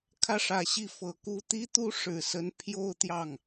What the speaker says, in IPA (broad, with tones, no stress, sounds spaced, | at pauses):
kʰ ä˥˩ ʂ ä˨˩ ɕ i˥˩ f ɤ˨˩ k u˥ t̪ i˥ t̪ u˥ ʂ ɻ̩˨˩ s ə˧˥ n pʰ j o˥˧ ʊ̯ t̪ j ɑ˥˩ ŋ